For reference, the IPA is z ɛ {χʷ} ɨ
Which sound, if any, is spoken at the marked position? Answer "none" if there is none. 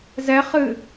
χ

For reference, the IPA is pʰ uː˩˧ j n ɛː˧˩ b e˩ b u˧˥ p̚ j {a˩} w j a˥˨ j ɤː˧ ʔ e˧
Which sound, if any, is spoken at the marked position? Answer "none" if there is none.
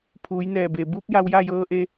a˧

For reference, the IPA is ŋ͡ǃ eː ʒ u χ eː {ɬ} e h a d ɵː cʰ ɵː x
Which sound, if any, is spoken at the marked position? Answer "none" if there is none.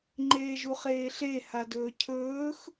ɬ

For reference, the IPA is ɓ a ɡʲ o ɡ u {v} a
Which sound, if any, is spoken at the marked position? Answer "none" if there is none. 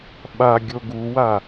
w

